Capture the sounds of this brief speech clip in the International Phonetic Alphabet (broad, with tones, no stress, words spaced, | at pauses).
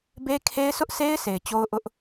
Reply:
be˦kʰe˦ɪ̯ sʊ˦ʔse˦ɪ̯ sʰe˨ɪ̯t͡ɕo˦ʊ̯ʔʊ˦ʔ